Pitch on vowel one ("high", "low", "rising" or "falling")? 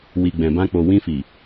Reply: low